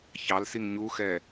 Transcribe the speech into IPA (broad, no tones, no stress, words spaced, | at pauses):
çɑlsiŋ ɲuxɛ